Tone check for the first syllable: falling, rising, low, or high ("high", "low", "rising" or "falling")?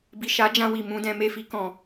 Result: low